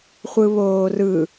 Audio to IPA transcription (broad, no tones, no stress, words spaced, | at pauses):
χʷɯβoːrɯ